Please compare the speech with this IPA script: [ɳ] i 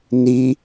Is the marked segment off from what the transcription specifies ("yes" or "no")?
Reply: yes